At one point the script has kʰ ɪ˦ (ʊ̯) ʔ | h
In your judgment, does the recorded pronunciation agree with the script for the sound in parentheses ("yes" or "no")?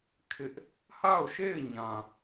no